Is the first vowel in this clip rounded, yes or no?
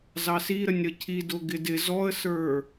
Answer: no